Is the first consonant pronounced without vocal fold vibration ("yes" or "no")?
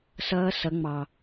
yes